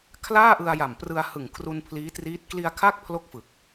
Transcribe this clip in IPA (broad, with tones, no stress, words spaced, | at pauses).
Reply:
kʰlaː˥˩ ʔɯ˧a̯ja˨˩mprɯ˧a̯hɯ˨˩ŋ kʰru˧npʰliː˦˥triː˦˥t̚ kli˧a̯kʰa˥˩k̚ pʰlo˥˩k̚fɯ˨˩k̚